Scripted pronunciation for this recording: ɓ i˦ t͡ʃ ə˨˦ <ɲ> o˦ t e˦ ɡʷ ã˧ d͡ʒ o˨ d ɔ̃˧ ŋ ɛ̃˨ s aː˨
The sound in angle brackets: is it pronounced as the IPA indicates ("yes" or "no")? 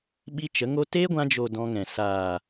no